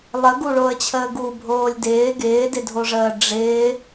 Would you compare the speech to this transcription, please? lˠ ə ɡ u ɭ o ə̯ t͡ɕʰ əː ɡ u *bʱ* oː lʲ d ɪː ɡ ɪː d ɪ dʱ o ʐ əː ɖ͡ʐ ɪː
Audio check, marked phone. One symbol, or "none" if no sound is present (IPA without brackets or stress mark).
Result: bʱ